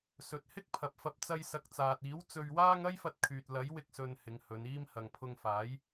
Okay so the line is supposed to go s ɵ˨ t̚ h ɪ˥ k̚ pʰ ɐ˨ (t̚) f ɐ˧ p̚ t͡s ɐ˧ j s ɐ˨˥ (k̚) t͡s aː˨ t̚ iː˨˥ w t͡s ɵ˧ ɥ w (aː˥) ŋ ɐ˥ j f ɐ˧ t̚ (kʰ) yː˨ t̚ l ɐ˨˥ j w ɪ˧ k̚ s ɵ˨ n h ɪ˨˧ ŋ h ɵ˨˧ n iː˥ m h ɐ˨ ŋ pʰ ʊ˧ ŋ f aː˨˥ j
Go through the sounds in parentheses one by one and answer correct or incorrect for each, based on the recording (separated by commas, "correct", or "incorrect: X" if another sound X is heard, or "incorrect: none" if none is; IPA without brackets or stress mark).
incorrect: p̚, correct, correct, correct